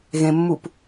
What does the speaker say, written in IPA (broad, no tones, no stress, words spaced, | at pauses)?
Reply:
ɣẽmːup